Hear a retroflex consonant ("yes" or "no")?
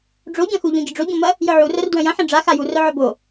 yes